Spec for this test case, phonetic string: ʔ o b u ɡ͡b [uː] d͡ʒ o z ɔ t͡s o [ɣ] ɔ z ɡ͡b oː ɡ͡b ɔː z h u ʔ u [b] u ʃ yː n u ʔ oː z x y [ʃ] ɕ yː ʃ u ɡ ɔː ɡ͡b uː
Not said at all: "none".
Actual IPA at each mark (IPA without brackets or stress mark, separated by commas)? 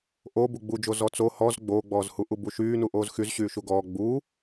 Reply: u, h, b, z